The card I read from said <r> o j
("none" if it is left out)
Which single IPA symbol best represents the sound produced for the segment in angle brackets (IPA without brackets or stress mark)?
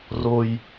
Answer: r